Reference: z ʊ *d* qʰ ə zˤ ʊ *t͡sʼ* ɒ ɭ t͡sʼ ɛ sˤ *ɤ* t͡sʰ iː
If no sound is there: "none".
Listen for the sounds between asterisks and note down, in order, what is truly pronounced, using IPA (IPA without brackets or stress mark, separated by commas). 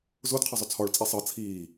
d, t͡sʰ, ɤ